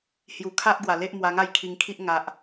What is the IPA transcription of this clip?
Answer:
h j u˨˩ kʰ a˦ ʔ ɡ w a˨˩ l e˦ ʔ m w a˧ ŋ a˥˧ j kʰ i˧ ŋ kʰ i˦ ʔ ŋ a˨ ʔ

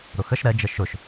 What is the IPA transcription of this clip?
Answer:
ɾ ʊ x ə ʃ ɾ ɛ d͡ʒ ə ʃ ʊ ʃ

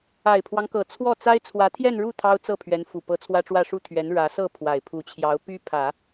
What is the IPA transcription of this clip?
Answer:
a˨˩ ɪ̯ pʰ w ɑ˦ ŋ k ɤ˨˩ t͡sʰ w ɔ˥˩ t͡s a˥ ɪ̯ t͡sʰ w ä˧˥ t̪ʰ j ɛ˥˧ n ɻ u˥˩ t̪ʰ ɑ˥ ʊ̯ t͡s ɤ˥˩ pʰ ɥ ɛ˧˥ n f u˨˩ p ɤ˧˥ t͡sʰ w ä˥ ʈ͡ʂ w ä˥˧ ʂ u˥˩ t̪ʰ ɥ ɛ˧˥ n ɻ ä˧˥ s ɤ˥˩ pʰ w a˨˩ ɪ̯ pʰ u˧˥ t͡ɕʰ j ɑ˧˥ ʊ̯ p y˥ pʰ ä˨˩˦

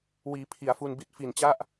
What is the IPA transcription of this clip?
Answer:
w iː˩˦ pʰ i˩˦ a̯ f u˧ n b i˥˩ t̚ f i˨˩ n t͡ɕ a˥˩ ʔ

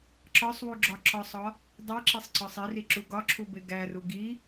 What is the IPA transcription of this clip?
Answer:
ǁ ɒ sˤ w u ɡ͡ǁ ɒ ǁ ɒ sˤ ɒ | dˤ i ǁ i sˤ ǀ ɒ sˤ i r i ǁ u ɡ ɒ ǁʰ u b e ɡ æ r u ɡ i

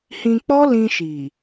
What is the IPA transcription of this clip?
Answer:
h ĩ˧ k͡p ɔ˦ l ĩ˧ ʃ i˨

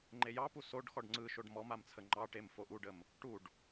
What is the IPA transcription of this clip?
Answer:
ŋ͡ǃ e j ɑ p u s o ɖ x ɔ ɖ ŋ͡ǀ ɯ ʃ o ɖ m ɔ m a m t͡sʰ ə ŋ͡ǃ ɑ ʈ e m f o ʔ u ɖ ə m | ʈ u ɖ

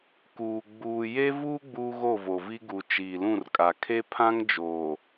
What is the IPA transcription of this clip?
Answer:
k uː˨ ɡ͡b uː˨ j e˦ v uː˦ ɡ͡b uː˦ ɣ o˦˨ v o˨ v i˦ ɡ u˨ t͡ʃ iː˨ l ũ˦˨ r kʼ a˨ kʰ e˦ pʰ ã˦ ŋ d͡ʒ oː˨

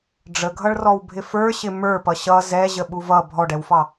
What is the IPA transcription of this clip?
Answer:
ɖ͡ʐ ə ɡʱ ʌ ɭ r ɔ w bʱ ɪ f ə˞ ɕ ɪ m ə˞ p ʌ ɕ ʌ z ɛ ʑ ə ɓ u v ʌ bʱ ɔ ɖ ɛ w f ɑ

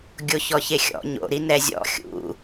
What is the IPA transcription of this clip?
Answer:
ɡʲ o ç ɔ ç e xʲ ɔ̰ ɲ o̰ ɾ i n ɛ zʲ ɔ̰ xʲ ṵ

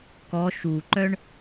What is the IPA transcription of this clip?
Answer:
k ɔ ʃ u ǃ œ ɳ

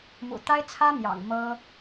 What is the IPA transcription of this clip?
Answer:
m ṵ˨˩ t̪ a˥ ɪ̯ t͡sʰ ä˥ m j ɑ̰˨˩ ŋ m ɤ˥

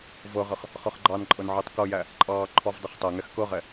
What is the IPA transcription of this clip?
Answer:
v ɤ ʁ ə χ | χ ɤ χ ɡ͡ǃ ɑ n ǃʼ ɤ n ʕ ɤ tˤ k ɤ j æ | ǃʼ ɑː ǃʰ ɔ v dˤ ə χ tˤ ɜ ŋ ɛ x k ɤ ʁ ɛ

